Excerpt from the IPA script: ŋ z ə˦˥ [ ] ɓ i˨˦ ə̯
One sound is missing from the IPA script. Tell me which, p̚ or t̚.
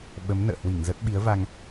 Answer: t̚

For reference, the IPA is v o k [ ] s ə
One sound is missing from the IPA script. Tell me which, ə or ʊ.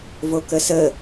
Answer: ə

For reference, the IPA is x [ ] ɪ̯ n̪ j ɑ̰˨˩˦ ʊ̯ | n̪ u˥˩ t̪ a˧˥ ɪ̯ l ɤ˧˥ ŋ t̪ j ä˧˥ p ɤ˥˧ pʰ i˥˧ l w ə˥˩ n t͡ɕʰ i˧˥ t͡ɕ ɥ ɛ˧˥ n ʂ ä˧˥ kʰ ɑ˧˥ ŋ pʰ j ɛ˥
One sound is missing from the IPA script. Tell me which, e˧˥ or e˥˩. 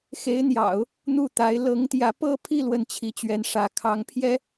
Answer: e˧˥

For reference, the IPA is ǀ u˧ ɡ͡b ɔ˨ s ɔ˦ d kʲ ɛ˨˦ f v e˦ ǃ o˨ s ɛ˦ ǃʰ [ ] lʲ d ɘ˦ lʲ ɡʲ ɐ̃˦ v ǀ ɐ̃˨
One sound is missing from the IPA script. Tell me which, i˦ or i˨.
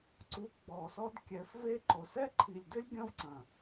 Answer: i˨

